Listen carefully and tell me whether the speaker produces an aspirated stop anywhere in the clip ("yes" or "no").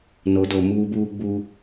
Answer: no